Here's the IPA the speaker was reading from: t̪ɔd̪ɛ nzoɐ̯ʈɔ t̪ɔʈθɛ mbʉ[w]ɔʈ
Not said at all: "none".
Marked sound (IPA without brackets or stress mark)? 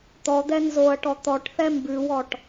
w